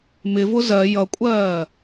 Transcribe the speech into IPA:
m ɪ v ʊ z ɜ j ʌ kʷʼ ɜː

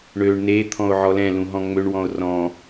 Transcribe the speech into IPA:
ɳ ø ɳ n e t̪ʰ ɔ̃ o̯ ʕ ɔ l ɛ̃ l ũ ɦ ɔ̃ ŋ͡m ø ɳ w ɔ̃ o̯ r ɔ̃

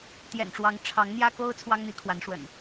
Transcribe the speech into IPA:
t̪ j ɛ̰˨˩ n ʈ͡ʂ w ɑ˨˦ ŋ ʈ͡ʂʰ ɑ˨˦ ŋ n̪ j ä˦ k o˦ ʊ̯ t͡sʰ w ɑ˦ ŋ n̪ i˨˦ kʰ w a˨˦ n ʂ w ə̰˨˩ n

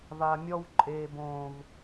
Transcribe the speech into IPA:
v a˨ mʲ ɔ˦ w ǃʼ eː˨ b õː˨ v

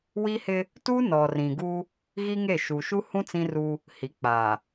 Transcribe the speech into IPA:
w i˦ h ɪ˦ | t u˦ n ɔ˨ r ĩ˨ ɡ u˦ | ɣ i˦ ŋ e˦˨ ʃ u˨ ʃ u˦ h ũ˦ t͡s ĩ˦ r u˦ | h i˨˦ k͡p aː˨

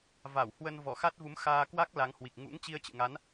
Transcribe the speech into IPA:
v a˧˩ w h w ə˧ n v ɔ˧˩ x a˦˥ t̚ v u˨˦ m x aː˧ k w a˦˥ k̚ l a˨˦ ŋ h w i˨˩ k̚ ŋ ṵ˧˥ ŋ t͡ɕ i˧ ə̯ t͡ɕ ɨ̰˧˨ ŋ a˨˦ n

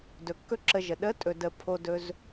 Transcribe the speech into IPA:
d ɵ˨ kː ɵ˦ ǁ ə˧ ʒ ə˨ ɗ ə˨˦ tʼ ɵ˨ d ə˨ pʰ o˦ d ɵ˦ z

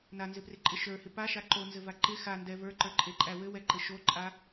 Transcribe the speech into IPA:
n a n z ɪ p r ɪ ǃʼ ɪ ʃ ə˞ h ɪ p a ʃ a ǃ o n z ɘ v a ǃ ɪ x a n d ɛ v ə˞ ǃ ə˞ ǃʼ e ǃʼ æ w ɘ w ɛ ǃ ɘ ʃ o ǃʼ a

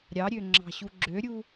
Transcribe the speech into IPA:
ɾʲ ɑ ɾʲ ø ŋ͡ǁ ɑ̤ ɕ u ɡ͡ǁ ø ɾʲ u

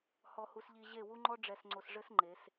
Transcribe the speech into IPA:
h ɔ˨ h u˨ s ʎ i˨ ʑ e˦˨ w u˦ ŋ͡ǃ ɔ˦ ɖ͡ʐ ɛ˨ s ŋ͡ǀ o˨ s ʐ ɘ˦ s ŋ͡ǃ e˨˦ s

